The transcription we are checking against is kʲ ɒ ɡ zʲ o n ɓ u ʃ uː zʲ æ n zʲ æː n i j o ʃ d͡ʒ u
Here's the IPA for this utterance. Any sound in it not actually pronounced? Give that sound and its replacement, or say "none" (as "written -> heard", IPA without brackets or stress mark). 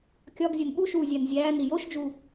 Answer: none